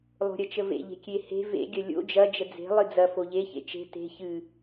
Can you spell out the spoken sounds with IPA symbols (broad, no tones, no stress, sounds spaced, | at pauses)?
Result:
lˠ o̤ ɾʲ ɐ t͡ʃ ə v ḛ ʎ e̤ kʲ e h e̤ v ḛ ɡʲ ɐ lʲ o̰ d͡ʒ ɐ d͡ʒ ə d͡z e̤ lˠ ɨ d͡z ɐ f o ʎ e ç ḛ t͡ʃ e̤ t e̤ ç ɨ